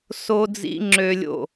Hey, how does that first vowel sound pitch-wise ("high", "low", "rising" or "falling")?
high